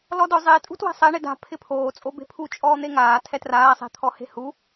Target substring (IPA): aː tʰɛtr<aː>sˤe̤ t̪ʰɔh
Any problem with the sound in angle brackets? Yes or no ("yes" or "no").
no